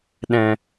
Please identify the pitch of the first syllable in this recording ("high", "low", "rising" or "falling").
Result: low